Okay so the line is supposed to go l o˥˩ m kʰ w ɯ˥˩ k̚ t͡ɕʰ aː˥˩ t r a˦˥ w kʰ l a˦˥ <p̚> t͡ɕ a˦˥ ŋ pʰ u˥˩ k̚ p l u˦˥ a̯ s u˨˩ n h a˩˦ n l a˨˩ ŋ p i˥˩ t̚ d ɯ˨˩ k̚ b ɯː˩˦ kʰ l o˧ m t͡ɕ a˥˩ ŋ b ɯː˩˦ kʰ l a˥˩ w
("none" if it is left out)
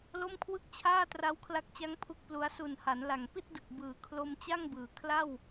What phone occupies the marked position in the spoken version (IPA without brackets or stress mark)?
k̚